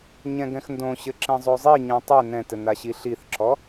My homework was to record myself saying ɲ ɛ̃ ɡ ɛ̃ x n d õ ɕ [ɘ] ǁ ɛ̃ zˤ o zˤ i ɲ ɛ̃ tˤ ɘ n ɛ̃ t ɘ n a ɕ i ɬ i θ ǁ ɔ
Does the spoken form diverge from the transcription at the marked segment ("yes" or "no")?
no